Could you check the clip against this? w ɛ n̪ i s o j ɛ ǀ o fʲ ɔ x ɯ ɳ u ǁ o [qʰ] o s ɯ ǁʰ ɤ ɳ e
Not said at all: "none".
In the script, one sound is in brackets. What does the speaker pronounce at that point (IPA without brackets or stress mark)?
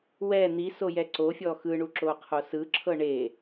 qʰ